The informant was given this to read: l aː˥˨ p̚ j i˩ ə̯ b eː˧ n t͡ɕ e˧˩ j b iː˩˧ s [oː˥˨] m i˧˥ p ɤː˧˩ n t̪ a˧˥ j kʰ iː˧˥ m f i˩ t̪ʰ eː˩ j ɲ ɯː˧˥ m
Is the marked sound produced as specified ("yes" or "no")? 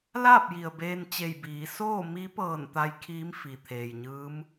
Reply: yes